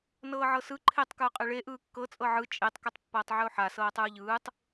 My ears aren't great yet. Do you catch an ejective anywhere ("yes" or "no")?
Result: yes